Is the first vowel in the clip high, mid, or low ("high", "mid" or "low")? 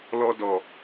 mid